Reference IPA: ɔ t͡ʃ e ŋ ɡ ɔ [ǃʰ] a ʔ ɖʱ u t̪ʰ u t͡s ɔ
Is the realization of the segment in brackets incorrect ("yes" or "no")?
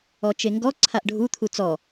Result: yes